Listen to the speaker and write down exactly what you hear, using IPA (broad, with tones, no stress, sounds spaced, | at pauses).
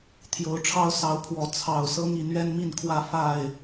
t̪ʰ j o˨˦ ʊ̯ ʈ͡ʂʰ ɑ˦ ʊ̯ s ɑ˨˦ ʊ̯ pʰ w ɔ˨˦ t͡sʰ ɑ˨˩ ʊ̯ s ɤ˦ ŋ i˨˦ n ɥ ɛ˦ n m i˥˨ n kʰ w ä˥˨ f a˥˨ ɪ̯